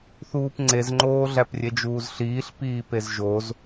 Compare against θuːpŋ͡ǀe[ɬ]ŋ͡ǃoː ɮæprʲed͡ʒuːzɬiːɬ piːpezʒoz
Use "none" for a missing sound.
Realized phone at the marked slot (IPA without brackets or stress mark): z